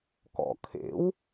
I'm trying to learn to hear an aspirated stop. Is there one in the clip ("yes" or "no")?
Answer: yes